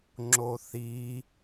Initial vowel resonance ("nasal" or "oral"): oral